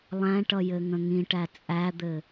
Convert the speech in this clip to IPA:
lˠ æ̃ ʈ ʌ j ɘ ŋ ə̃ ŋ ĩ ʈ æ t͡sʼ æ d̪ ɘ

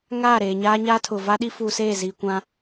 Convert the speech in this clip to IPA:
ŋ aː˦˨ ɾ eː˨ ɲ aː˦ ɲ aː˦ tʰ ʊ˨ v a˦ ɗ i˦ f uː˨ s eː˦˨ z iː˨ kʷ ã˦

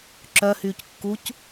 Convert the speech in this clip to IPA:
ǁ œ h yː c kː u c

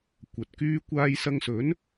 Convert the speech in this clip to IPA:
kʷ ɐ˨ t̚ k yː˧ kʷ aː˧ j s ɐ˧ ŋ s ɵ˨˥ n

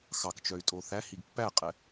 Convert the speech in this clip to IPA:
x ɑ k t͡ʃ œ y̯ tʼ o θ æ h i ɡ pː æ qʼ ɛ

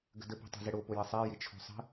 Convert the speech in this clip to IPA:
ɡ ə̤ d ə p ɛ̤ tˤ ɛ̤ z ɘ ɽ o p o j ɘ sˤ ɛ j ɪ t͡ʃʰ o̤ sˤ ə̤

